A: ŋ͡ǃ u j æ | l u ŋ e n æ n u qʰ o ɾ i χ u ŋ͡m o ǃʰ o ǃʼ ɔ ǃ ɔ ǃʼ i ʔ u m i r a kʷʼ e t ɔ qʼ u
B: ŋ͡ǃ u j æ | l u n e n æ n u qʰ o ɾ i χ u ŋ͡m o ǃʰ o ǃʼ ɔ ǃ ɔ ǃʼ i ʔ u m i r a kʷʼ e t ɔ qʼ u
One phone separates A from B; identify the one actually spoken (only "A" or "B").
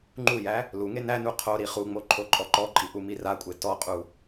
A